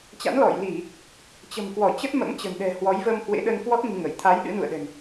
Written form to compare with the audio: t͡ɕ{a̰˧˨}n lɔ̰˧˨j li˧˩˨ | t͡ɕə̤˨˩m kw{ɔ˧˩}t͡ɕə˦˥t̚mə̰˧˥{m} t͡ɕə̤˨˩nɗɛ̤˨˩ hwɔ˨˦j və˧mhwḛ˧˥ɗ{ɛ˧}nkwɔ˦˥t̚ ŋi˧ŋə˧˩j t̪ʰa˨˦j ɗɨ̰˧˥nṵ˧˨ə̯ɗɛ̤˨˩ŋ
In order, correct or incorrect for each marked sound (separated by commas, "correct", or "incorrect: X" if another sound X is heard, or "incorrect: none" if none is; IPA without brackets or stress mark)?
incorrect: a̰˧˥, correct, correct, incorrect: ə˧